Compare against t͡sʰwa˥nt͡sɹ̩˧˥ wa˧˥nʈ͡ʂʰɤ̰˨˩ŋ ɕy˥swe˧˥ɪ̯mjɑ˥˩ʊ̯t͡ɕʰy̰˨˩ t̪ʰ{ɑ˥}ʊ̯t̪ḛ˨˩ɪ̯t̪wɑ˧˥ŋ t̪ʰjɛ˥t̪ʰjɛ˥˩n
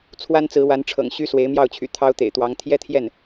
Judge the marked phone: correct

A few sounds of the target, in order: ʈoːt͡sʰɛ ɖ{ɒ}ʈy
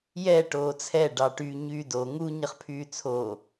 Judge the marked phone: incorrect: ɑ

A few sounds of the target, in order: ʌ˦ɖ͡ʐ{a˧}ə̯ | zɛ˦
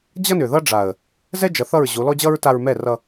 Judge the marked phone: incorrect: a˨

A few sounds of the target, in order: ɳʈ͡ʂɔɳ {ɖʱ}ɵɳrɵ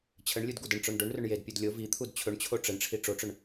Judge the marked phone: incorrect: ɖ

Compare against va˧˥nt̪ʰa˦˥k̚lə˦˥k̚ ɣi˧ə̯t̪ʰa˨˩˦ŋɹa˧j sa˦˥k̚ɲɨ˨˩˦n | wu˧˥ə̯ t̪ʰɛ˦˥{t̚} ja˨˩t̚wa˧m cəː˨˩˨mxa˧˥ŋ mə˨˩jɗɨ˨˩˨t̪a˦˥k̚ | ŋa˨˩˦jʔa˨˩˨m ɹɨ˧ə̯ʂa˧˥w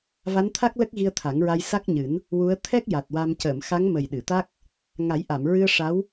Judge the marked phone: incorrect: k̚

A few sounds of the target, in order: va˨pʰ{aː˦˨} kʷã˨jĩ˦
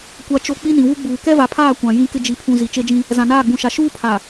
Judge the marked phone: correct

